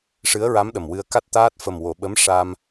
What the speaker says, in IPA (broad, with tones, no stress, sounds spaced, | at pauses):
ʂ ɨ˧˥ ə̯ ɹ a˧˥ m ɗ ə˨˩ m w ɨ˧ ə̯ k a˦˥ t̚ t̪ aː˦˥ t̚ f ə˨˩ m w o˨˩˨ ɓ ə˧˥ m ʂ a˧ m